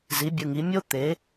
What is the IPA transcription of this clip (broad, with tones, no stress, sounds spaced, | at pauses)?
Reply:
z i˩˥ bʲ ɯ˩˧˩ ŋ i˩˥ mʲ o˥ t̪ e˩˥